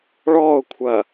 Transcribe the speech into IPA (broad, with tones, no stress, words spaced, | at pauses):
ɭɔː˦˨ʊ̯ kʷʰɐː˨